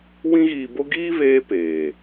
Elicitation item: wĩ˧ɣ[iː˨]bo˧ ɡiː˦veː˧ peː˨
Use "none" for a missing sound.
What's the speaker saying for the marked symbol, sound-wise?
iː˨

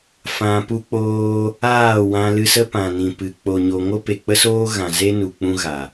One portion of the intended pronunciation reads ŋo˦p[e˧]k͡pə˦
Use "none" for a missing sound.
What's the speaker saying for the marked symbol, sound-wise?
e˨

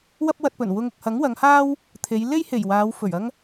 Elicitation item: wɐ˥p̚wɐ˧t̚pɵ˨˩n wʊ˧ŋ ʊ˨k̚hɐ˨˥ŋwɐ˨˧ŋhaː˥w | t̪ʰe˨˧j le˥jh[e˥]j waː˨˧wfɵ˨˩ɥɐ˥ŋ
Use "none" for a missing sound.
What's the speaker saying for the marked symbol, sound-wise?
e˨˩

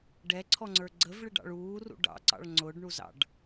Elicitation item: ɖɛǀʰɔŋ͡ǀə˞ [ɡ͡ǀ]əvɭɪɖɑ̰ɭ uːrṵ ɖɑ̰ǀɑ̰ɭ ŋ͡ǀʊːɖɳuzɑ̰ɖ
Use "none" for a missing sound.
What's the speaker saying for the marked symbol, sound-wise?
ɡ͡ǀ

